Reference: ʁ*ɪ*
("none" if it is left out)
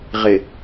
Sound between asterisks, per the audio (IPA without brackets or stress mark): ɪ